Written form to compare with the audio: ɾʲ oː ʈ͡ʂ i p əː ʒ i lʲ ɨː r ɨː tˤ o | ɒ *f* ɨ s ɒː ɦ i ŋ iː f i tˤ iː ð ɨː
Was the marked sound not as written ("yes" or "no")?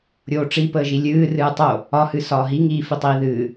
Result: yes